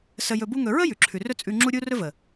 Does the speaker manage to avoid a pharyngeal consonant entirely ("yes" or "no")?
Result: yes